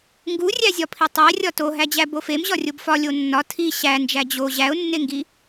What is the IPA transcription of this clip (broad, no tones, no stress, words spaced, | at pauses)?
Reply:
ŋɡurʲæzʲɒpʰi tˤæ rʲɒtoɦæd͡ʑæ bofemʑɒ rʲobfɒ lʲonːɒ tʰi ɕænd͡ʒæ d͡ʑo ʑæʊ̯nːeŋɡi